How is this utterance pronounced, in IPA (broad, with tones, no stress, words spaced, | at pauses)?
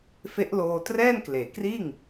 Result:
fe˦˥ʔloː˧ trɛː˥˩nkleː˩˦kriː˥˩ŋ